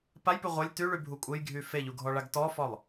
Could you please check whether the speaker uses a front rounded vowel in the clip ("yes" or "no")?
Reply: yes